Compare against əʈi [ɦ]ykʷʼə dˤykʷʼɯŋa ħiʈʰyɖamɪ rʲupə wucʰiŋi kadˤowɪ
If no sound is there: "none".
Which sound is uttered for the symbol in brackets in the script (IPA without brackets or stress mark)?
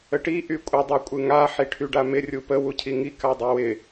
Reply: ʔ